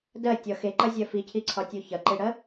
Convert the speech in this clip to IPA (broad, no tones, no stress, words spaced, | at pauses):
dɜtʲɒ xeǃɐzʲɜ ficʰiǀʰɒtʲo çɐǃeɽɜ